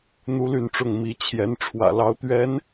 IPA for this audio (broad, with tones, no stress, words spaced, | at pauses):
n̪u˥ly˥˧nʈ͡ʂʊ˥˩ŋ mi˧˥t͡ɕʰjɛ˧˥n ʈ͡ʂʰwä̰˨˩lɑ˧˥ʊ̯t̪ɥɛ˧˥n